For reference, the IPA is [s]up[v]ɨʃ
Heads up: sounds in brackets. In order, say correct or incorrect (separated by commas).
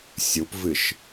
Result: incorrect, correct